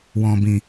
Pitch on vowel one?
low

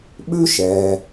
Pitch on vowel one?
high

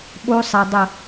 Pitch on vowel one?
high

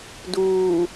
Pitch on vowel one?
low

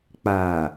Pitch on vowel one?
low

